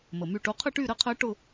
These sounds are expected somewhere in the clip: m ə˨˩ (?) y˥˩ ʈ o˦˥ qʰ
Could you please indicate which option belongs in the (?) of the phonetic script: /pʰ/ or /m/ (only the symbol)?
m